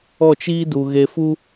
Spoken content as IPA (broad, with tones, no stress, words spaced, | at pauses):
ɔ˦˨t͡ʃiː˦du˨ ɣe˧fu˦